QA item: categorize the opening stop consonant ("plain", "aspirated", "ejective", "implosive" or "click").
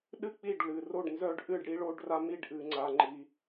implosive